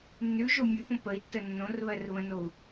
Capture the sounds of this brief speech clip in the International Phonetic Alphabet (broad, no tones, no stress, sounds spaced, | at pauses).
nː ʉ ʒ o mʲ ʉ p õ p ə i̯ tː ə nː õ r β ɜ r β ə̃ n o u̯